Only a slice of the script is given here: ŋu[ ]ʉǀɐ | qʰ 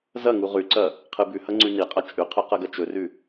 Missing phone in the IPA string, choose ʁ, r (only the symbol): ʁ